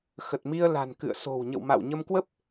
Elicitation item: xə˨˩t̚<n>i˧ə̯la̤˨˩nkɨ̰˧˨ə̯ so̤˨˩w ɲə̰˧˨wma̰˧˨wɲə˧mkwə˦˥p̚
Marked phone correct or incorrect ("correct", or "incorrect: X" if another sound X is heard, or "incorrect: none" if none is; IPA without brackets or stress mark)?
incorrect: m